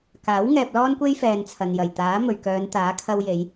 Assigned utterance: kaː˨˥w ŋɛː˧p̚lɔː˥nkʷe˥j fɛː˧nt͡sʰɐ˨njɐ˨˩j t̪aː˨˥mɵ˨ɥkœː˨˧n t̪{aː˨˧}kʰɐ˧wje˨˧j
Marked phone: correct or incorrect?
incorrect: aː˨˥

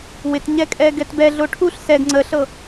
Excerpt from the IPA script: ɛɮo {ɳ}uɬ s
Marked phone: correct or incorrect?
incorrect: ʈʰ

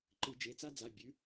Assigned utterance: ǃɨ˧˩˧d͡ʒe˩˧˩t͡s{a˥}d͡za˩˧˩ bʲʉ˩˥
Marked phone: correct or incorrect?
correct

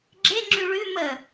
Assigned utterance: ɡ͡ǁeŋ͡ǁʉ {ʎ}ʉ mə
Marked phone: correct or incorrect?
incorrect: ɭ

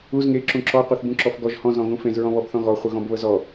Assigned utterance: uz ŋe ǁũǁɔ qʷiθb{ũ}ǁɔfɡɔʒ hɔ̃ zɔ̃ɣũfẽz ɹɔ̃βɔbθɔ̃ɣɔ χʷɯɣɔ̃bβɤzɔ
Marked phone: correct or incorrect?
correct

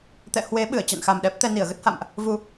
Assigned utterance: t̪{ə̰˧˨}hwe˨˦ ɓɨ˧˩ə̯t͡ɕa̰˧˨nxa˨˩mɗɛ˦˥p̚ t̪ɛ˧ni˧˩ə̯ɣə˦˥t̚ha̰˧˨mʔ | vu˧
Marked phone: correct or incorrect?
incorrect: ɛ̰˧˨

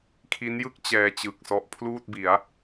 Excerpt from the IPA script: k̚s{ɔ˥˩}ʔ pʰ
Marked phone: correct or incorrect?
incorrect: ɔ˦˥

